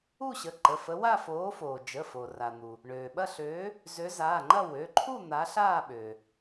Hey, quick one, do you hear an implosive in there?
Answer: yes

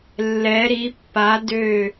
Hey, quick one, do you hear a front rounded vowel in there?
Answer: yes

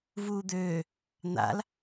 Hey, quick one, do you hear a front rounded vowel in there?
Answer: yes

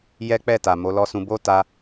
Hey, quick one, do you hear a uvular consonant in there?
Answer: no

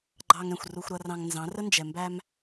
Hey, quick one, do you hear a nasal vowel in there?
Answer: yes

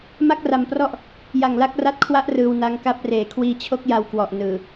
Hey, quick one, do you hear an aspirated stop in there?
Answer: yes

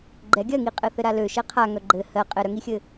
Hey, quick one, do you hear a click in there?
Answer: yes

